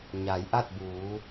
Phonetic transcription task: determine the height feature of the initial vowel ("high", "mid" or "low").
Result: low